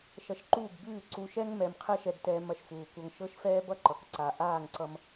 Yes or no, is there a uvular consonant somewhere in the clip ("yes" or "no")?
yes